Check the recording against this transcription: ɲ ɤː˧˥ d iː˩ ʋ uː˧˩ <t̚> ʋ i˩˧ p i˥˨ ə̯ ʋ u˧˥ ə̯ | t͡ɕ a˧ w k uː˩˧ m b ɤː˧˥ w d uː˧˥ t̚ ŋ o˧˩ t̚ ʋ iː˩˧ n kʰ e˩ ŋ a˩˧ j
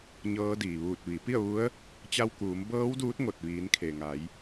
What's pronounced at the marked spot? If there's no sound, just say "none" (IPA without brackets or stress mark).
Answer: t̚